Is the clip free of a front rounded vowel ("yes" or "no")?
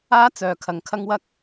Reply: no